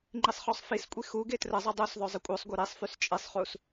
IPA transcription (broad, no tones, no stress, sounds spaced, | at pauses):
ŋ͡ǃ i sˤ χ ɔ sˤ f i s kʷʼ i x u ɡ e t r ə zˤ i dˤ u s ðˤ œ zˤ ə kʷʼ œ sˤ ɡʷ œ ɾ i sˤ f y s t͡ʃʼ e sˤ χ u s